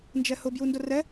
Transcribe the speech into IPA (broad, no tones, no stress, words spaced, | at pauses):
nd͡ʒɛhʊ bjundʊrɛ